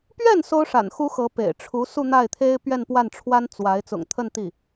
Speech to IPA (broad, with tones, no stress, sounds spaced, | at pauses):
p ɥ ɛ˥˩ n s o˥ ʊ̯ ʂ a̰˨˩ n x u˥ x ɤ˧˥ p ḛ˨˩ ɪ̯ ʈ͡ʂʰ u˧˥ s u˥˧ n̪ a˥˩ ɪ̯ t̪ʰ e˥ ɪ̯ p ɥ ɛ˥˧ n p w a˥˩ n ʈ͡ʂʰ w a˥ n t͡s w a˧˥ ɪ̯ t͡s ʊ̰˨˩ ŋ t̪ʰ ə˥˧ n t̪ i˥˩